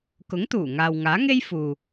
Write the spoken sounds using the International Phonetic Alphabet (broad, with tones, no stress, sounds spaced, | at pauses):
k ʊ˨˥ ŋ t̪ uː˨˩ ŋ aː˨ w ŋ aː˨˥ ŋ e˥ j f uː˨